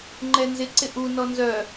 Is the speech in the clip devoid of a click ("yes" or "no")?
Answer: no